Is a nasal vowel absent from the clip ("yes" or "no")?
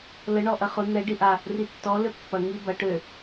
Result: yes